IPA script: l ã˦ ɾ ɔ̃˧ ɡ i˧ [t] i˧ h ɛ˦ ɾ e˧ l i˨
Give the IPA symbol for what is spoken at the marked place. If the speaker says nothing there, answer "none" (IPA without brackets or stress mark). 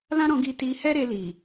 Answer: t